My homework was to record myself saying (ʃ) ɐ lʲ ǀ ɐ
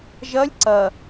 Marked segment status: incorrect: ʒ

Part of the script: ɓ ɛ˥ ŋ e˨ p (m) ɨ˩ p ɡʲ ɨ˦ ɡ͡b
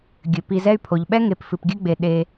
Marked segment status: incorrect: f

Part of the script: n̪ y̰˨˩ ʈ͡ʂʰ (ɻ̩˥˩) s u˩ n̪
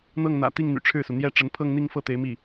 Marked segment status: correct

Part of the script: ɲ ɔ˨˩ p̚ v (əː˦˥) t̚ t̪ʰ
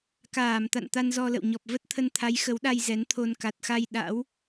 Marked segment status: incorrect: ə˦˥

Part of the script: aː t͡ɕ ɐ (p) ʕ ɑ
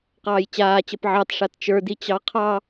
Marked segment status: correct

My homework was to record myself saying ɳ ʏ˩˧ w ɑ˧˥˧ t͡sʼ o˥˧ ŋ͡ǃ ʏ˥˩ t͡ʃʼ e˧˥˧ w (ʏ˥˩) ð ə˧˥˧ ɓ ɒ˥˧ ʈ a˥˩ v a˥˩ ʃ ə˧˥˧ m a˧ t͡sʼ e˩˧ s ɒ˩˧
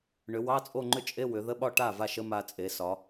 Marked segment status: incorrect: ʏ˩˧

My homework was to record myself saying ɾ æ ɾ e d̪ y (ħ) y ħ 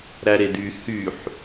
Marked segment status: incorrect: h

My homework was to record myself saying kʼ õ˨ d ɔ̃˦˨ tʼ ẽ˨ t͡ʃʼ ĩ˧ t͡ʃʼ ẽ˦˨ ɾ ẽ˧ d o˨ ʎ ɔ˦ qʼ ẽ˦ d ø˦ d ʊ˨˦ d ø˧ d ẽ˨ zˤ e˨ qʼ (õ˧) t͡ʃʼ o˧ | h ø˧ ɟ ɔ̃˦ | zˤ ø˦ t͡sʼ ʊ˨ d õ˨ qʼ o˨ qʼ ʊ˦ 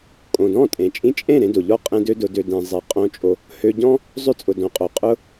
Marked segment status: correct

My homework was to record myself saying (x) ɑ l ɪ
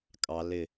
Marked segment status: incorrect: kʼ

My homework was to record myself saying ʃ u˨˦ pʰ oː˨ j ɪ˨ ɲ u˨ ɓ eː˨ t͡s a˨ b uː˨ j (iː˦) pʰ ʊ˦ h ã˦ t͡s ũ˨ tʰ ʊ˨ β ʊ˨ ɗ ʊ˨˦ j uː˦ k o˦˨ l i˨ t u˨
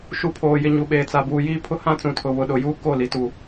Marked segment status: correct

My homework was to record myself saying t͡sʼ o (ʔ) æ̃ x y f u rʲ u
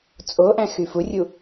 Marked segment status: correct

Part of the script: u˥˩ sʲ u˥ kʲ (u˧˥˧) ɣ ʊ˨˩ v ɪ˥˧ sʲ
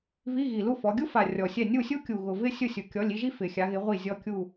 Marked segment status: incorrect: u˨˩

